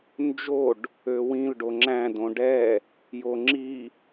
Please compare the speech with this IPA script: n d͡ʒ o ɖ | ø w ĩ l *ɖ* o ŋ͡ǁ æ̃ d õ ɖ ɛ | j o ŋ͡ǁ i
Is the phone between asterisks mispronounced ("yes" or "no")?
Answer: no